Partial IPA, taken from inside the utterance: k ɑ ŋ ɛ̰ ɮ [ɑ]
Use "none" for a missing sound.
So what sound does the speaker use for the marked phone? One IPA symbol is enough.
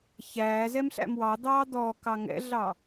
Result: ɑ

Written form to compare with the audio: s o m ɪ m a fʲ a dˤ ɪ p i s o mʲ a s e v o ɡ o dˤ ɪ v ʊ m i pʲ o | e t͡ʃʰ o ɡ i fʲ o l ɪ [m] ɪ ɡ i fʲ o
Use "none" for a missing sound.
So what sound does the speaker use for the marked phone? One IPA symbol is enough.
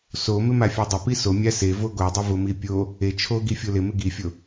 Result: m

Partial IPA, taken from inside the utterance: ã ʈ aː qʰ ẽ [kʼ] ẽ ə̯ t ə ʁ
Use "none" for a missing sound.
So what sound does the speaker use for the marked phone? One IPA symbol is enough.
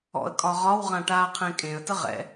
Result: kʼ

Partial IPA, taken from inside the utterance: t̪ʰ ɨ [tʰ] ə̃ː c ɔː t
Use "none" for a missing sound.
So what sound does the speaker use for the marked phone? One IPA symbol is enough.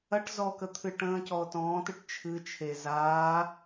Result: ʈ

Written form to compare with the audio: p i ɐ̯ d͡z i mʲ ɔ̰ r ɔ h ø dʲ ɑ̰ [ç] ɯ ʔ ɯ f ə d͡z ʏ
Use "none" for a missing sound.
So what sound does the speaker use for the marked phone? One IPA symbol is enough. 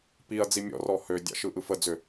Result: ʃ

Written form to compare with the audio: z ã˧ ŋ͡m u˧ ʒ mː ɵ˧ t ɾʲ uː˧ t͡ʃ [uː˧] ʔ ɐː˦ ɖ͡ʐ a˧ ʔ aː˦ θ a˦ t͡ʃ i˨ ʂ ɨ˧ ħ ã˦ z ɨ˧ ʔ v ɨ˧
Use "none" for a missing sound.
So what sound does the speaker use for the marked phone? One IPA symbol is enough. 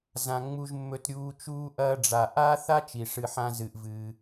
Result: uː˦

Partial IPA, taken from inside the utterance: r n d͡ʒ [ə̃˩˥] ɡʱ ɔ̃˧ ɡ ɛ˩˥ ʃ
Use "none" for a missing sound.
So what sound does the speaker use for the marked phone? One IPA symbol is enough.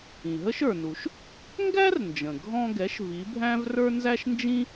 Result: ə̃˩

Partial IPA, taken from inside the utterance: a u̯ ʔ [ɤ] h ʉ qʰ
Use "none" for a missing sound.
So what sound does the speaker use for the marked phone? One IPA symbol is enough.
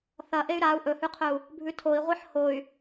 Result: ɵ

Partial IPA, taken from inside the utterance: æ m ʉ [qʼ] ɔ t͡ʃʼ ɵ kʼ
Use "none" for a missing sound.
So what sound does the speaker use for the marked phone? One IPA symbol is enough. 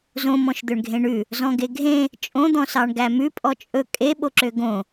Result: pʼ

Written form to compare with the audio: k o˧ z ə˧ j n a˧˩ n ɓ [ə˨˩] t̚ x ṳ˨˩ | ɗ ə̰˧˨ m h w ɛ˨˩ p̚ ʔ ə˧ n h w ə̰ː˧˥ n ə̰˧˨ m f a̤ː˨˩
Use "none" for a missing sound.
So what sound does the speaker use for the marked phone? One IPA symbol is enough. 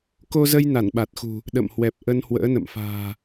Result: a˨˩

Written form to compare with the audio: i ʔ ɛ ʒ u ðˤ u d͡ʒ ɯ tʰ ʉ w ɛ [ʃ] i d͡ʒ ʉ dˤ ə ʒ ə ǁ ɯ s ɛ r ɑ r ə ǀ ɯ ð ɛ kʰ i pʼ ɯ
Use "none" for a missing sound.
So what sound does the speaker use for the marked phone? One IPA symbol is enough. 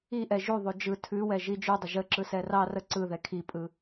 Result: ʒ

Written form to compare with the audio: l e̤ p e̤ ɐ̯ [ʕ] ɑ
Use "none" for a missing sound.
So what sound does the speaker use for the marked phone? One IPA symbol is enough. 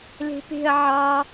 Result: ʕ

